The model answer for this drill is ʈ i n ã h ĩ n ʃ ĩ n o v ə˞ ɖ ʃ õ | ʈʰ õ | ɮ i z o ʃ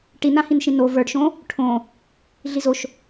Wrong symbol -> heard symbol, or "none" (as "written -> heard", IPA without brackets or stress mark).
none